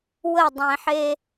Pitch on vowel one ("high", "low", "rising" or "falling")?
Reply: falling